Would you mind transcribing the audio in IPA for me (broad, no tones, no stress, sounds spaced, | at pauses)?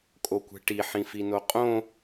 kʼ o kʷ ɛ̤ ʈ i ħ ĩ f i n o qʼ õ